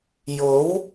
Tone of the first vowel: rising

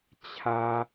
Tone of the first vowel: high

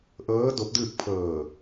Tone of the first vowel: rising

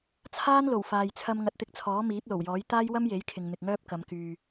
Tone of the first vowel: high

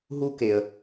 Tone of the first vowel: high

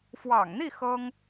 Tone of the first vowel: low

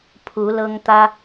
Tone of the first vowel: rising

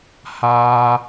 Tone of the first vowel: high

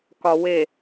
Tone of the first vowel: low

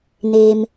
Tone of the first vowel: low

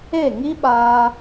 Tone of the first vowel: falling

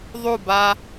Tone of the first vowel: falling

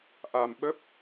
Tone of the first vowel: low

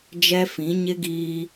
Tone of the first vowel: high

